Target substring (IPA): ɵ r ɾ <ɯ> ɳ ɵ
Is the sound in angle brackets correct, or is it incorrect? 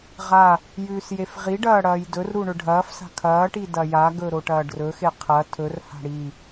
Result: incorrect